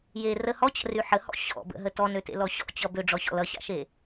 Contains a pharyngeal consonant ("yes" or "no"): yes